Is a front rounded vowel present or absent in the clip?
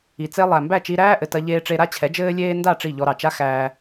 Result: absent